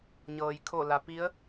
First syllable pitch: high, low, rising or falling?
low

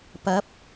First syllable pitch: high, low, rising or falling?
rising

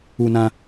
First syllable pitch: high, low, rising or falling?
high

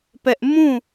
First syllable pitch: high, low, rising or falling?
high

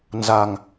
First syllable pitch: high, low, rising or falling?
low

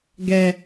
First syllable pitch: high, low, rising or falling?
low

